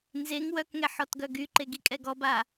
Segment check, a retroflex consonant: absent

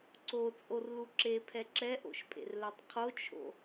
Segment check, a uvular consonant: present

